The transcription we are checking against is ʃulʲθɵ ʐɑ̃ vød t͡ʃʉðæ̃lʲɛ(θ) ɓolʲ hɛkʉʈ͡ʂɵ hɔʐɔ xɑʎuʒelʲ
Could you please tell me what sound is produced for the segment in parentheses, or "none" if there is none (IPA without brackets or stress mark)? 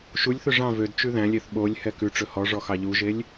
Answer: θ